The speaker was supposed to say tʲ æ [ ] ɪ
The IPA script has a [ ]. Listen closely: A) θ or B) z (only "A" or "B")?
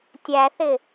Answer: A